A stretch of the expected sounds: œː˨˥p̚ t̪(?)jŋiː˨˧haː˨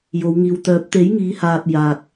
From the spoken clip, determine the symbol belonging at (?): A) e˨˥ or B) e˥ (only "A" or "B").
A